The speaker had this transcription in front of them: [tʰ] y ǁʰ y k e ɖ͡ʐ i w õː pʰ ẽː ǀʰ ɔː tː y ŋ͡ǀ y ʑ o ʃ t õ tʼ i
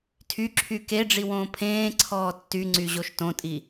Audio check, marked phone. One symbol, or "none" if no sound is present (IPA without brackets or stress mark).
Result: tʰ